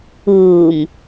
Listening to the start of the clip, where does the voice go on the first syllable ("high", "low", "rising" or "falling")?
low